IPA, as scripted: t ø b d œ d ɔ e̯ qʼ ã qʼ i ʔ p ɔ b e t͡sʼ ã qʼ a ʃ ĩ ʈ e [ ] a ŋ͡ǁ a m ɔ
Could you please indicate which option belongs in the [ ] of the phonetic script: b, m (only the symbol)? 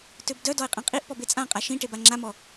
b